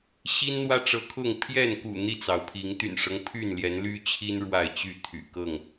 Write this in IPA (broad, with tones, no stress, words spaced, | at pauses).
ɕi˦nn̪wä˦ʈ͡ʂɤ˨˦kʰʊ˥˨ŋ pʰjɛ˥˨nkṵ˨˩ n̪i˥˨t͡sɑ˩ʊ̯pʰi˨˦ŋ t̪y̰˨˩nʂɤ˦ŋ pʰy˥˨nljɛ˨˦nly˦t͡ɕʰi˦n ɻwa˥˨ɪ̯t͡ɕy˥˨t̪ʰy̰˨˩ kɤ˥˨ŋ